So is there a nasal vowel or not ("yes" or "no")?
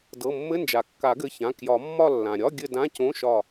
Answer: yes